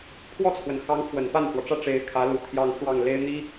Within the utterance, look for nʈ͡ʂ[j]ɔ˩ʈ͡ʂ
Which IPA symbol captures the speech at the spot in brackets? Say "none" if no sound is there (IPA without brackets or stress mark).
w